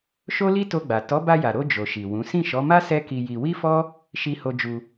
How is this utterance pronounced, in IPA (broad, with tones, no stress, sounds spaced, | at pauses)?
ʃ o˦ l i˦ t o˧ ɡ͡b a˨ t ɔ˨˦ b a˧ j a˨ ɾ o˧ d͡ʒ o˨ ʃ i˨ w ũ˨˦ s ĩ˦˨ ʃ ɔ˨˦ m a˦ s ɛ˦ k i˧ j i˧ w i˦ f ɔ˦ | ʃ i˧ h o˧ d͡ʒ u˧